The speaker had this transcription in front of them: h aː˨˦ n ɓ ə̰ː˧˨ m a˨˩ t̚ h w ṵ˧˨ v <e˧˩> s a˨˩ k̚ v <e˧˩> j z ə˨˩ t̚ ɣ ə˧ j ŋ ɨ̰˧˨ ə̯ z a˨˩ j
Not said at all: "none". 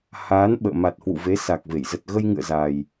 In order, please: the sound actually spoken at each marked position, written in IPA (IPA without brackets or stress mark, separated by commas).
e˨˦, e˧˩